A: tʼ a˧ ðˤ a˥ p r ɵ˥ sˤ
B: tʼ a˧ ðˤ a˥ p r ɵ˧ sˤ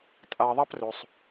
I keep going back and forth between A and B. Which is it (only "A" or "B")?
B